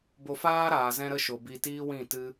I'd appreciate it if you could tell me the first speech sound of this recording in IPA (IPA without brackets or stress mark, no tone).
b